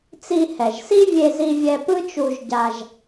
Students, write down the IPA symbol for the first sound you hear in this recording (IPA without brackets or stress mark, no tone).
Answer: t͡s